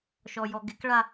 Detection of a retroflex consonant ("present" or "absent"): present